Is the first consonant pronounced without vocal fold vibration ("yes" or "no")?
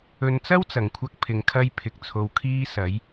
no